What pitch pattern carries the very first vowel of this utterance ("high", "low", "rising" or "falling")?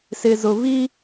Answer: low